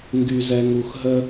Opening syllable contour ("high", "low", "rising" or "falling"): low